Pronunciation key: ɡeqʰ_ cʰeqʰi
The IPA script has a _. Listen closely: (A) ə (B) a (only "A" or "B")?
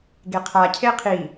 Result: B